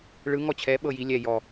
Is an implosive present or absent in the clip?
present